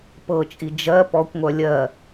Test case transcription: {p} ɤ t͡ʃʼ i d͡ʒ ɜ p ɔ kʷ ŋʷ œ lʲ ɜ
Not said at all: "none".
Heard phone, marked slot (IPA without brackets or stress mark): p